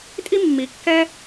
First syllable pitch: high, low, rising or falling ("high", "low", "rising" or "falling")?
high